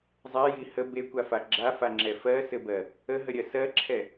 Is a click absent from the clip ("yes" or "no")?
no